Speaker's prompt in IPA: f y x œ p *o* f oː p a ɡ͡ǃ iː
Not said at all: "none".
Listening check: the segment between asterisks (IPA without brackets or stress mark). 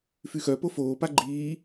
o